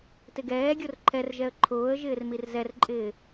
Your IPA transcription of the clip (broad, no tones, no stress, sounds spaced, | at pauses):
t ɪ ɡ ɛː ɡʲ o r ǃʰ ɛ r ʒ ɛ ə̯ ǃʰ ʊː ə̯ ʒ ɪː r m i r z ɛ r ǃʼ ɪː